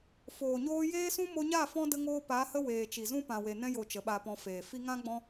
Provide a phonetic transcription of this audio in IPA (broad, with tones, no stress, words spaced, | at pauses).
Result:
foː˨ɲoː˧ jeː˦sũ˦ mo˧ɲa˦˨ fɔ̃˦ də˦ŋoː˦ pa˨˦ hə˦ weː˨t͡ʃi˨ zũ˦ pã˨we˨nɛ̃˧jo˨ t͡ʃə˨˦ɓa˧pɔ̃˧ feː˨fi˦ ŋã˦ɡ͡bɔ̃˦